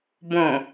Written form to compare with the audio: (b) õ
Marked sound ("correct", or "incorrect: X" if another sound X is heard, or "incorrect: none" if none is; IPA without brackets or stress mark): correct